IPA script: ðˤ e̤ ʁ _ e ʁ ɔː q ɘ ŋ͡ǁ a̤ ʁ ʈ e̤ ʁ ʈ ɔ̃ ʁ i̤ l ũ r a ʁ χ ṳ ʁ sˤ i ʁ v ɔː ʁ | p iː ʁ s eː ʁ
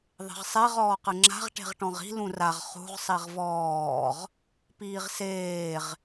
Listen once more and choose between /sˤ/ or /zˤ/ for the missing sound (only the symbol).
sˤ